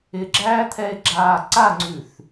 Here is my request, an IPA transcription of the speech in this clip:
ɪ ɡ͡ǁ æː t̪ʰ ɛ e̯ ɡ͡ǁ aː ǀ a ŋ͡ǀ ʉ θ

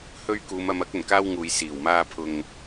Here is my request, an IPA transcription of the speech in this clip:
h ɵ˥ ɥ k uː˨˧ m ɐ˧ m ɐ˥ k̚ ɵ˨˩ n k aː˥ w ŋ uː˨ j s iː˨˩ w m aː˧ pʰ ʊ˨ ŋ

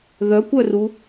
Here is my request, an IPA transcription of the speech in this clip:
ð œ kʷ œ r u

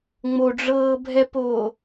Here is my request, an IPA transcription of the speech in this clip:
ŋ͡m o ɖ͡ʐ ɤː bʱ ɛ p oː

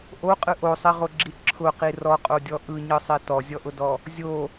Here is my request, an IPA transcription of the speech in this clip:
ʔ o qʼ ɯ ʔ o sˤ i ʁ o ɡ͡ǁ i ǁʰ ʊ q i r ɔ qʼ o dʲ ɔ ʔ ɯ ɲ ɯ sˤ i t ɔ zʲ ɔ ʔ ʊ d ɔ | zʲ o

